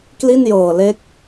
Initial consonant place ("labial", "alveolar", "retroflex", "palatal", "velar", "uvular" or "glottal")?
velar